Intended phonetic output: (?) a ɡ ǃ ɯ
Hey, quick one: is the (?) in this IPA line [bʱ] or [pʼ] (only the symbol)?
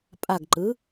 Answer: pʼ